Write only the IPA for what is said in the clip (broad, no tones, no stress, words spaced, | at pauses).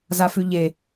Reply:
zafʉʎe